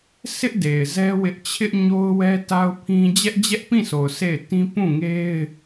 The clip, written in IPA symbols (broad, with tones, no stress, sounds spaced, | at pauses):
s ɪ˦ ʔ d e˨ ɪ̯ z ɛ˦ w ɪ˦ ʔ t͡ɕʰ ɪ˦ ʔ ɲ o˦ ʊ̯ w ɛ˦ t a˦ ʊ̯ pʰ ĩ˦ d͡ʑ ɛ˦ ʔ d͡ʑ ɛ˦ ʔ p ĩ˦˨ sʰ o˨ ʊ̯ sʰ e˦˨ ɪ̯ t ĩ˦ p ũ˦˨ ŋ e˦ ɪ̯